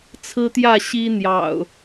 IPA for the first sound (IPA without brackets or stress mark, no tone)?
t͡sʰ